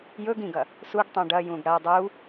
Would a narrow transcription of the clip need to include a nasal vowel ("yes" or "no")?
yes